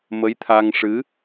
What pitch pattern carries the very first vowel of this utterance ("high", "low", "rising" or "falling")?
rising